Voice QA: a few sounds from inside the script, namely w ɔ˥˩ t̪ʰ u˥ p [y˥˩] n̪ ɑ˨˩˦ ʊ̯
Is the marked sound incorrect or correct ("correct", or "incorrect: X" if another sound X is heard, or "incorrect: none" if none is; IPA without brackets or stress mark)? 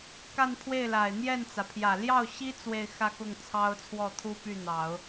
correct